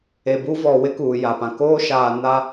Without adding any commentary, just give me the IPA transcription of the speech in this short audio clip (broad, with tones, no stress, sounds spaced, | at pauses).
e˨ b u˦ v ɔ˨ w ɪ˦ k uː˨ j a˨ p ã˨ k oː˦ ʃ aː˨ n a˦